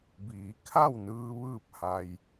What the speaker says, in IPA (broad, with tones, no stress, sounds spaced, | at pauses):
b iː˩˧ kʰ a˥˨ w n ɯː˧ ʋ ɯː˥˨ p̚ h a˧ j